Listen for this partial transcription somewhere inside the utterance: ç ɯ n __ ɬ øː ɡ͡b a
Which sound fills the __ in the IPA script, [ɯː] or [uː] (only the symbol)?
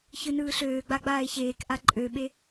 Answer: ɯː